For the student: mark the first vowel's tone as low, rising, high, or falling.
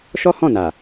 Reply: high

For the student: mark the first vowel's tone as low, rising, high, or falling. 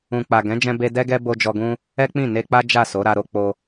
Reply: low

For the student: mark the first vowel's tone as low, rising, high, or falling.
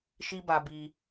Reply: high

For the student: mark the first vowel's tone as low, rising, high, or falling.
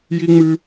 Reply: high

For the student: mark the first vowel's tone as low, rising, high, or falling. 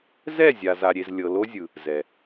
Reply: falling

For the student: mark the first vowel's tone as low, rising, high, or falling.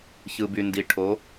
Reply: low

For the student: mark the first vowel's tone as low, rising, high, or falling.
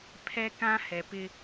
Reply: high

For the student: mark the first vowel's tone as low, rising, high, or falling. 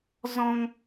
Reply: high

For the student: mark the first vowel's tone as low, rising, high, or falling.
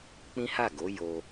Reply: high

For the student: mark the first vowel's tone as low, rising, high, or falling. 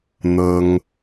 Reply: high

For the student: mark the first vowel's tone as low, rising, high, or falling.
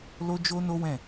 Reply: high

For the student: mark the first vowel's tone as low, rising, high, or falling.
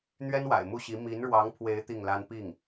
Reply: high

